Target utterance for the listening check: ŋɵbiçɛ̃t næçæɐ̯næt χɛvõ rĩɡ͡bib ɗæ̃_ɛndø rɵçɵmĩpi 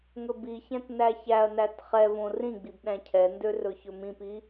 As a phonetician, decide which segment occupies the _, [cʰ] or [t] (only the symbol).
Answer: cʰ